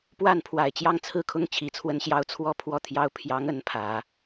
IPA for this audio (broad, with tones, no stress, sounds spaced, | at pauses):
p w a˥˩ n pʰ w a˨˩ ɪ̯ t͡ɕ j ɑ˥ ŋ t͡sʰ ɹ̩˥˩ kʰ ʊ˥ ŋ t͡ɕʰ i˧˥ t͡sʰ w ə˥ n ɕ j ɑ˥ ʊ̯ t͡sʰ w ɔ˥˧ pʰ w ɔ˥˩ t̪ʰ j ɑ˥ ʊ̯ pʰ j ɑ˧˥ ŋ ə˧˥ n pʰ ä˨˩˦